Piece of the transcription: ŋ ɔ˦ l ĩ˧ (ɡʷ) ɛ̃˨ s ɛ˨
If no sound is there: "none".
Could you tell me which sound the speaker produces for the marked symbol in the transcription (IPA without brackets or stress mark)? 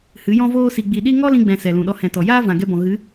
ɡ͡b